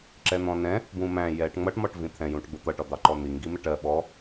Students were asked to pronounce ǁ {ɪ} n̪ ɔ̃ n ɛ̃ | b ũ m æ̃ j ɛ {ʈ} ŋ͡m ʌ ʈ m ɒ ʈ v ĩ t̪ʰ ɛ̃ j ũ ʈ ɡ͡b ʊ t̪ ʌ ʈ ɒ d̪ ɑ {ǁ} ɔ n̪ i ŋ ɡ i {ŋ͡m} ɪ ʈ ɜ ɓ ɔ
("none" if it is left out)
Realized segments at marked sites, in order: ɛ, ʈ, ǃ, m

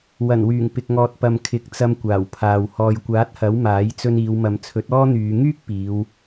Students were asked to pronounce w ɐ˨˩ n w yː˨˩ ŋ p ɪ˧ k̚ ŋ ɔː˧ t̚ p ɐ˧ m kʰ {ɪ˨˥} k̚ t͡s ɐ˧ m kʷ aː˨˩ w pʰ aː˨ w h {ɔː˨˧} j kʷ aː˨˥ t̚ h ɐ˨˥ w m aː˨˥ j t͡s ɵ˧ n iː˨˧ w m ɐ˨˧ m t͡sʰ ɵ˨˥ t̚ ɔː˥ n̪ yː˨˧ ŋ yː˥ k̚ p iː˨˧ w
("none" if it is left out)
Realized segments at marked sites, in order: ɪ˨˥, ɔː˨

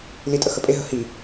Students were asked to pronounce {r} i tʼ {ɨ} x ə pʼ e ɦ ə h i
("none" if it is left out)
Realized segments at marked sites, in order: l, ə

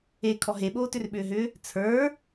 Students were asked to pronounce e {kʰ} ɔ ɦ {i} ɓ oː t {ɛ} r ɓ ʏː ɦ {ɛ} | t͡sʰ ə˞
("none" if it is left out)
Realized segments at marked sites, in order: kʰ, e, ʏ, ʏ

